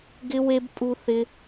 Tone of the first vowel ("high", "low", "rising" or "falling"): high